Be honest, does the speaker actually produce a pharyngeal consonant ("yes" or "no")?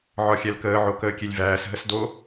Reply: yes